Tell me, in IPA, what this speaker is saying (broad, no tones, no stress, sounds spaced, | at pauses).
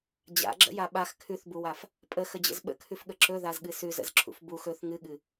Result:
d͡ʑ a̰ ɡ͡ǁ ə̰ j a ɓ a x kʰ ʉ θ b u w a f | pʼ ə x ə d͡ʑ ə̰ z ɓ ə̰ kʰ ʉ f ɠ ə ǁ ɵ ð a z ɠ ɨ s ʉ z ə̰ z ǁʰ ṵ f b u x ɵ θ ŋ ɨ ɠ ɨ